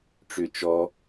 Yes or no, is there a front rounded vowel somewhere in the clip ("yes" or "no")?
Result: yes